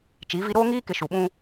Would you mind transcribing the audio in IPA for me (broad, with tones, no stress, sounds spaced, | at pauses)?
t͡ʃ i˨˦ v i˦ ɾ oː˦ ŋ iː˦ k ɪ˨ ʃ u˨ ɓ ũ˦